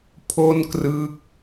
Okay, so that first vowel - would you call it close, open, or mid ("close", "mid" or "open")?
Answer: mid